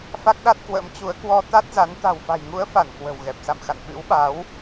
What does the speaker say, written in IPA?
fa˦˥k̚ɗa˦˥t̚kwə̰˧˥m t͡ɕu˨˦ə̯kwɔ˧t̪a˦˥t̚za˨˦n t̪a̤˨˩wfa̤˨˩jŋu˨˦ə̯fa˧˩n kwə̤˨˩wɣɛ˨˩p̚sa̰˧˨mxa̰˧˨n ɓɨ̰˧˥wɓa˨˦w

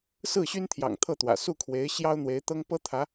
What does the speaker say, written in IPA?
sɹ̩˥˩ɕy˥nt̪ʰjɑ̰˨˩ŋ t̪ʰɤ˥˩t̪wä̰˨˩ su˥˩kʰwe˧˥ɪ̯ ɕjɑ˥ʊ̯n̪we˧˥ɪ̯t̪ɤ˥ŋ pɤ˥t̪ʰä˧˥

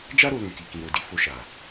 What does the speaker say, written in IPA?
d͡ʒa˦ ɾo˧lũ˨ki˨ kĩ˨ɾo˨di˨˦ fo˧ʃa˨

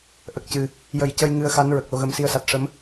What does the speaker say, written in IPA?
ʔə˨˩k̚cɨ˨˩ | jə˨˩˨j cə˧jŋɨ˧˥ə̯xa˧˥n ɹə˨˩k̚lo˧ɣə˧m si˧˥ə̯sa˨˩t̚ʂə˧˥m

